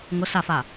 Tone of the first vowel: rising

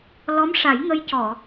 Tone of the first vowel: rising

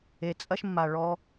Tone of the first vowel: low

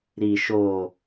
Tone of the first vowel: low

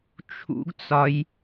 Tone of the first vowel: high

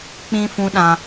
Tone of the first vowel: high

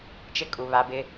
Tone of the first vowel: falling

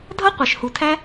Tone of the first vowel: high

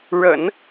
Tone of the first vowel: low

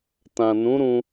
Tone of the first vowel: low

